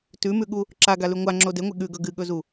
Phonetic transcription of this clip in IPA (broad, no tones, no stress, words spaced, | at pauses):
tʉmʉɠu | ǁaɡalʉ ŋʷaŋ͡ǁo deŋʷe ɠʉɡɵ ɡɨɠɵzu